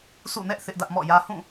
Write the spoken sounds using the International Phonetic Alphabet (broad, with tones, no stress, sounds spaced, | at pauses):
s ṵ˦˨ n ɛ˦ ʔ θ ɪ˦ ʔ d ä˦ ʔ m ɔ̰˦˨ j ä˦ h ũ˦˨